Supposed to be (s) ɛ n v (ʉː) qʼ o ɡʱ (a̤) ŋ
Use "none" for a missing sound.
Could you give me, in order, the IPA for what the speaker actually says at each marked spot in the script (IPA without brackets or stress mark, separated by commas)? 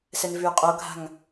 s, ʉː, a̤